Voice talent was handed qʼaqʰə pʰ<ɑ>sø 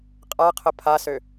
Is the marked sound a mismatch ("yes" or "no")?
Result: yes